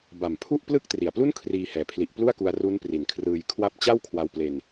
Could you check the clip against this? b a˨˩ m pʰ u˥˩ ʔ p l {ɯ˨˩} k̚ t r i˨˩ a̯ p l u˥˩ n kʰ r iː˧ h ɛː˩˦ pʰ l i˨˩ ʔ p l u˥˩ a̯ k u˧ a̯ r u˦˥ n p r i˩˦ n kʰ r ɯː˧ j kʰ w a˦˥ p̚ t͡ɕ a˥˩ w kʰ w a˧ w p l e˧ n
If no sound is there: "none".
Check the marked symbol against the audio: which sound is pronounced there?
ɯ˦˥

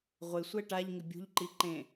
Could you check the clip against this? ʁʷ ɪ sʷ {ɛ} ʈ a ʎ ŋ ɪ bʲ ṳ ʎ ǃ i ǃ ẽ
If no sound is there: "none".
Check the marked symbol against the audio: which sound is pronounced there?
ɛ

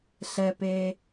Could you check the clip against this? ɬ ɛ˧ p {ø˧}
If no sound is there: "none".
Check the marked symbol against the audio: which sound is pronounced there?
e˧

